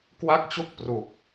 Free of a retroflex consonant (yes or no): yes